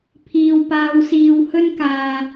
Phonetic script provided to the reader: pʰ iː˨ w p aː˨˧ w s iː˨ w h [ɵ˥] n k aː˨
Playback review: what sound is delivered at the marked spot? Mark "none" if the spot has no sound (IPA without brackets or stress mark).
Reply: ɵ˥